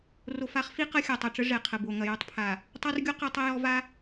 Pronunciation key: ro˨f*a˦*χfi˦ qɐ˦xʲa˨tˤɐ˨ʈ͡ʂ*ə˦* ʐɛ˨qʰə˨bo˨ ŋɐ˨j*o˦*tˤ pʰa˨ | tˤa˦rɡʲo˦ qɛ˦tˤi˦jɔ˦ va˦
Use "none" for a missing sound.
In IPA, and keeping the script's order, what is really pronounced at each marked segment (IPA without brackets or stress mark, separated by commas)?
a˦, ə˦, o˦